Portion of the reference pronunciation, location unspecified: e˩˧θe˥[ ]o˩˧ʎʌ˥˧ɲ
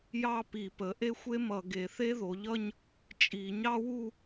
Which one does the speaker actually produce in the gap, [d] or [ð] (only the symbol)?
ð